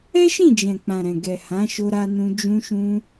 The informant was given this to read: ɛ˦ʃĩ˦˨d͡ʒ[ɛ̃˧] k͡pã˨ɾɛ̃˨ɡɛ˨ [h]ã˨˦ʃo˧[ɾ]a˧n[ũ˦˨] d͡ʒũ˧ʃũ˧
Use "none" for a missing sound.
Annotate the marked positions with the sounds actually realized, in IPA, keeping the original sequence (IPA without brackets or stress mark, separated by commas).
ɛ̃˨, h, ɾ, ũ˧